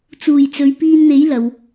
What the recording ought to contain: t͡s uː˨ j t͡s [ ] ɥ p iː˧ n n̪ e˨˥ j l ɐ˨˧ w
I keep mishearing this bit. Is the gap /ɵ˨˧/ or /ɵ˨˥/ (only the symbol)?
ɵ˨˧